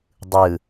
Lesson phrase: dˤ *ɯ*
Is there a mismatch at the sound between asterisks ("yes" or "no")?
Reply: no